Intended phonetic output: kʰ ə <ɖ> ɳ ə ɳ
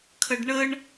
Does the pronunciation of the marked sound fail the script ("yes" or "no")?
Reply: no